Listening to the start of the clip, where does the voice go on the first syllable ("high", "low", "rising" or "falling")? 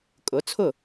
rising